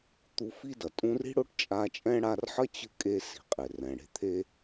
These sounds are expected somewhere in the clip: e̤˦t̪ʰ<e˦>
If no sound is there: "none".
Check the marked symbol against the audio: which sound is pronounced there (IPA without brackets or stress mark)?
e˦